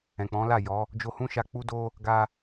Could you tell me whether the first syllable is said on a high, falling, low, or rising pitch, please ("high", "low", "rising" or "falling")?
low